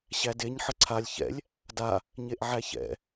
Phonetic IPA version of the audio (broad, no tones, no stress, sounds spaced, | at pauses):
ɕ æ d e ɲ ħ ə ǀʰ a lʲ ç ɛ̰ lʲ | d a | ɲ e ʔ ʕ æ ç ɛ̰